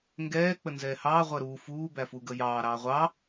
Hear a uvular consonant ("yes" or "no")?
yes